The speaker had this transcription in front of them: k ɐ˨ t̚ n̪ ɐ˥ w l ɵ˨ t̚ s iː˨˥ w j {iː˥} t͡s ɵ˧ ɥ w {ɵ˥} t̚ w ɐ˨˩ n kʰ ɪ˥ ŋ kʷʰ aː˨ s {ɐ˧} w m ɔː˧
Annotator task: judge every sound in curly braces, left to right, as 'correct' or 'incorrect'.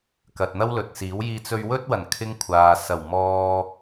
incorrect, correct, incorrect

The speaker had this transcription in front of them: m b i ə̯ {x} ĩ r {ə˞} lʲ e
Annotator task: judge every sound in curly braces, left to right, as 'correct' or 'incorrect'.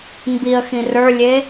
correct, correct

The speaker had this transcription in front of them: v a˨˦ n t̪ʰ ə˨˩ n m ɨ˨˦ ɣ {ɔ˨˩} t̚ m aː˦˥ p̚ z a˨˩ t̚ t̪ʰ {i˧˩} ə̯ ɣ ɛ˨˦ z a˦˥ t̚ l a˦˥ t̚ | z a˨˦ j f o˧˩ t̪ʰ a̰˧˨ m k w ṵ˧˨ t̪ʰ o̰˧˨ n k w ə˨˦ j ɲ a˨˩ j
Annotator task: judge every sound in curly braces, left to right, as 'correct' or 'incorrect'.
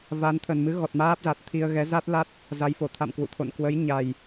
correct, incorrect

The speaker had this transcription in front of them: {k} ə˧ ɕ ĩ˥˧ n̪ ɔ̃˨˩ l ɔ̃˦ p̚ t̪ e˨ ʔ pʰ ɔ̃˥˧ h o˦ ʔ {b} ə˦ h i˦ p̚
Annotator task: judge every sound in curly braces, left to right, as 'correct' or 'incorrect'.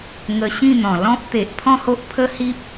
incorrect, incorrect

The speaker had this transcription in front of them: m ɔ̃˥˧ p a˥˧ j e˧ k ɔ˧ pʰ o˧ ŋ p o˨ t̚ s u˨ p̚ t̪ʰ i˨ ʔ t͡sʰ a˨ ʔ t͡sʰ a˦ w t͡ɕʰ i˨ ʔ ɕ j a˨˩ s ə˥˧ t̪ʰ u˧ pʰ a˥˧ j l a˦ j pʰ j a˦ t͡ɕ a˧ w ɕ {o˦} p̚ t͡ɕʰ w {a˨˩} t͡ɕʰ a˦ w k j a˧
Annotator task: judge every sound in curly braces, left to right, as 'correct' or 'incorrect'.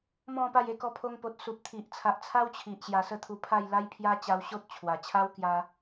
correct, correct

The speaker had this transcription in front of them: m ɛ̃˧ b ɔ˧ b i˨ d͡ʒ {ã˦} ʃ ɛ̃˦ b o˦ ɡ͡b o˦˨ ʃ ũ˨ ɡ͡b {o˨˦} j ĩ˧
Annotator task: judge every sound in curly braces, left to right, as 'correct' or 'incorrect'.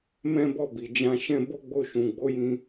incorrect, correct

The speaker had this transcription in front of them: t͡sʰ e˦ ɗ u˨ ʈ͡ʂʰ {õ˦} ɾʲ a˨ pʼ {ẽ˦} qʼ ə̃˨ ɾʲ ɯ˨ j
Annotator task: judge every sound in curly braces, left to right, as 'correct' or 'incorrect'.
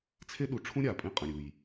incorrect, correct

